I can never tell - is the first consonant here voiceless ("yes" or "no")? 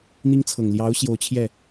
no